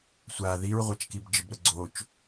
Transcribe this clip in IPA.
sʷa ðiɹʁʷat͡ʃkib d͡ʒəbɾəɡ͡ǀot͡ʃ

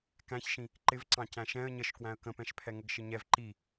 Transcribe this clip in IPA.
kæ̃çʃĩ | ǃɪvǀɑ̃ cæ̃ʃɛ̃ə̯ ɲəʃkwæ̃ə̯ kə̃pɛ̃ʃpʰɛ ŋəɡʃɪɲɛv ǃi

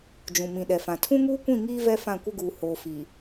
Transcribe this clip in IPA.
d͡ʒũ˨mĩ˨ ɗɛ˨fã˨ tʰũ˦ŋuː˦kʷĩ˦˨ŋiː˦ vɛ˦fã˦˨kʷɪ˦ɡuː˨ hoː˨fi˨

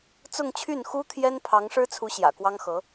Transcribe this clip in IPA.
t͡sʊ˥˧ŋt͡ɕʰy˥˩nxu˥t̪ʰjɛ˥n pʰɑ˧˥ŋʂɻ̩˥t͡sʰu˧˥ ɕjä̰˨˩kwɑ˥ŋxɤ˧˥

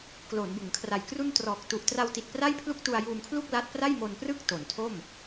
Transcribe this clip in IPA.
klo˩˦nbɯ˩˦ŋkʰra˨˩jkru˥˩n trɔː˨˩k̚ tu˨˩ʔtra˧wti˨˩t̚ pra˥˩jpʰlu˥˩k̚tu˧a̯ juː˧mkʰlu˥˩k̚ la˦˥t̚pra˥˩jmo˧nprɯ˥˩k̚ to˩˦ntʰo˥˩m

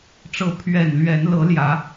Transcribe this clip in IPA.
ʈ͡ʂɤ˨˦pʰɥɛ˨˩nlɥɛ˨˦n lɤ˨˦ljä˨˦

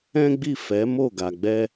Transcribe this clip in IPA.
ɛ̃˦ɡ͡bi˦˨ fɛ˨˦mo˦˨ɡa˨ɡ͡bɛ˧

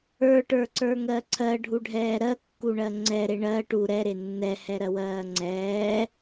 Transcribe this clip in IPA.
ə˞ʈə˞ǀə˞ŋɜ ǀʰɜɖʱuɖʱɛː ɾɜkːuɳɜ ŋ͡ǀɛɾe ɳɜ ʈu ɾɛɾe nːɛhɛɾɜwɜː ŋ͡ǀɛː

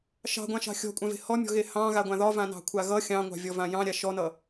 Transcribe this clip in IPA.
ʃɑ̤ɡʷãʃɑ̤ xʲɔ̤kʷʼãve̤ hɔmʲɔ̤ɣe hɑ̃ɣaɡʷã ðɒvãnɑ̤kʷʰa ɣʌ xʲɑ̃ŋʷɑ̤vʲɔvã jɑ̃ɾʲa ʃɔnʌ

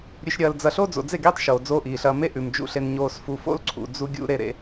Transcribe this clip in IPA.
ɾʲʉ˨ʃɾʲɐː˨ld͡zɐ˨ ɬo˦d͡zo̰˨d͡ze˦˨ɡiː˦tˤ ʃoː˨d͡zoː˦ʔiː˨ɬɐː˦ me˦ʔʉ˨m d͡ʒṵ˨ɬe˨n ɲoː˨sfu˨fo̰˦lǀʰṵ˨ d͡zu˦ɡʲṵ˦ ɾe˦ɾḛ˦

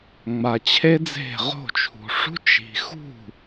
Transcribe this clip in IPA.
ŋ͡ma˨t͡ɕʰe˥d͡ze̤˥˩ ʁo̤˥˩t͡ʃʰṳ˨ʂṳ˥ t͡ʃi̤˨xṳ˥˩

